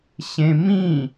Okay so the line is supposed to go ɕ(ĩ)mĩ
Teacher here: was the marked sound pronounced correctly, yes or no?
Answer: no